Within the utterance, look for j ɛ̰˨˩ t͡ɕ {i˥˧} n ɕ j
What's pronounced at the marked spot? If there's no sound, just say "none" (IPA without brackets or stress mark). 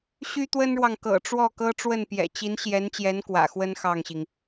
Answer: i˧˥